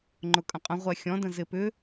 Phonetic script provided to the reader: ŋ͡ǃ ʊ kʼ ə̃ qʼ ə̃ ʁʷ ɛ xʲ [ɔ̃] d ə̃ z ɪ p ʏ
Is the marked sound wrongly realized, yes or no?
no